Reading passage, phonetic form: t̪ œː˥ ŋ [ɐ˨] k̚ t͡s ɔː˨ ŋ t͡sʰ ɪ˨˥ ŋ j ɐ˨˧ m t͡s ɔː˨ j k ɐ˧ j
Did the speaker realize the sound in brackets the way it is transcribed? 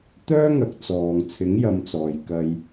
no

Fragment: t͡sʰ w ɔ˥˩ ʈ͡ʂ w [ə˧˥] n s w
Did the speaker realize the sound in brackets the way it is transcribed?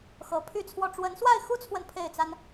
yes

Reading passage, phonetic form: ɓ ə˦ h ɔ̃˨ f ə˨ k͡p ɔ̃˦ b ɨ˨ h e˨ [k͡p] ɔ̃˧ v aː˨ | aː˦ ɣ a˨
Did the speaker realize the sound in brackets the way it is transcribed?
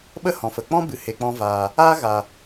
yes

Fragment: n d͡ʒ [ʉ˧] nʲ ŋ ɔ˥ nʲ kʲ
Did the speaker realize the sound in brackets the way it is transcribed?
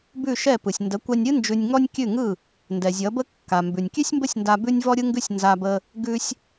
yes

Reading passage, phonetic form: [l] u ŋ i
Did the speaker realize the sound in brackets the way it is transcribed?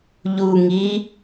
no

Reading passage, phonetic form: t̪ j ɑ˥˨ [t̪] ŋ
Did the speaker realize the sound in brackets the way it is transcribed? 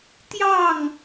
no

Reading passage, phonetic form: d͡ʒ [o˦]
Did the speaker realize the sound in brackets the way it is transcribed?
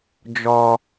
no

